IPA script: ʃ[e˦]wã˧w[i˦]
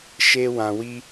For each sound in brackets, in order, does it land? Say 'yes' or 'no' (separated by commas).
yes, yes